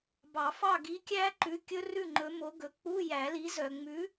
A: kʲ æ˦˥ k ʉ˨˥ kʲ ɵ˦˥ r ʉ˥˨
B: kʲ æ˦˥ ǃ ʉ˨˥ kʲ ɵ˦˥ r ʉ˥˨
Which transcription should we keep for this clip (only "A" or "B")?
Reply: B